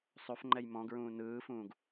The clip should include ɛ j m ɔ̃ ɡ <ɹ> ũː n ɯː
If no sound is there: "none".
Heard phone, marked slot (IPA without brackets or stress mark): ɹ